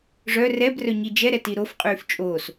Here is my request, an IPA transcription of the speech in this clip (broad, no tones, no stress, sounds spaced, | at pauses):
ʐ œ r ɛ b r œ ɲ i d͡ʒ ɛ ɾ ɛ t i ɾ o f qʼ yː f t͡ʃʼ oː s